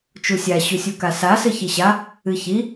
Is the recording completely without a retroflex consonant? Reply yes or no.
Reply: yes